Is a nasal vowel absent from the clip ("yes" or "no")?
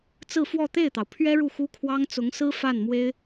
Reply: yes